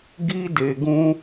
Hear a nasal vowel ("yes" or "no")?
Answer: yes